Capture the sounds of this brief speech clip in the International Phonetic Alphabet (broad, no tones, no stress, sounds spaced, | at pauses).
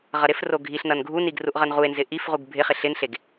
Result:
ʁ ʌ ɾ ɪ f r o ɡʱ i ɬ n ʌ n ɡʱ u n i ɡ r u ʔ ʁ ʌ n ʁ u e̯ n z ɪ ʔ i f ʁ u ɡ bʱ ɪ χ ɪ ɬ ɪ n ɬ e ɡ